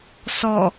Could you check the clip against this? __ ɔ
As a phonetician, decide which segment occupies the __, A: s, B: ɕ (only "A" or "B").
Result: A